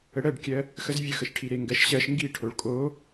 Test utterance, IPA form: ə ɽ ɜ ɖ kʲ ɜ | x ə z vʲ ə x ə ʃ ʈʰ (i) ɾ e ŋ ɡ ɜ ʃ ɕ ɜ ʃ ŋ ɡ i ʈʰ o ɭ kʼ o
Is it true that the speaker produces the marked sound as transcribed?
yes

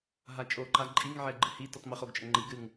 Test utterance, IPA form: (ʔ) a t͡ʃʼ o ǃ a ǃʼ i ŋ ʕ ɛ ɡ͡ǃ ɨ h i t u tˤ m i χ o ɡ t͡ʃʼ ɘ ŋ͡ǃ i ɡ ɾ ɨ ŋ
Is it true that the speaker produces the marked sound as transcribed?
no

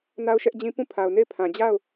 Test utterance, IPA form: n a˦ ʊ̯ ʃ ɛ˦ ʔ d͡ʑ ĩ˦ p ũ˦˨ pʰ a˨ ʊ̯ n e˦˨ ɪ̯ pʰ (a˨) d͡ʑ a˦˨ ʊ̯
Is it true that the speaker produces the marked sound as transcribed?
no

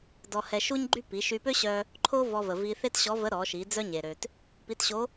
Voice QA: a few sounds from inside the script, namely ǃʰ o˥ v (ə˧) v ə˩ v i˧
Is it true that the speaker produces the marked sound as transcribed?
no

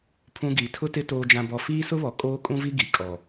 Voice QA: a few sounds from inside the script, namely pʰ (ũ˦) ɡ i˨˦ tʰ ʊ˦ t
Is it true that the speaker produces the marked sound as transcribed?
yes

